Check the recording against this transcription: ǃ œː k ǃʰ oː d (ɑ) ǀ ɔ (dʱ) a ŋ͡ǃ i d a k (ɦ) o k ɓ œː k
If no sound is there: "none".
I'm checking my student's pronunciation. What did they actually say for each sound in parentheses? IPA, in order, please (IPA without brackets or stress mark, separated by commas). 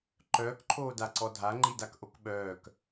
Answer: a, dʱ, ʔ